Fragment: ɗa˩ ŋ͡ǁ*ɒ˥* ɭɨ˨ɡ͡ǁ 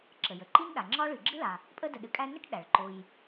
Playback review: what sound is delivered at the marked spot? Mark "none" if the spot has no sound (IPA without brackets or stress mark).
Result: ɒ˥